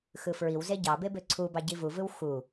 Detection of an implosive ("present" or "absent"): absent